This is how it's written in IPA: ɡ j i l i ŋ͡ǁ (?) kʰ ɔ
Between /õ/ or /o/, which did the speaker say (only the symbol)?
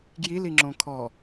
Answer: õ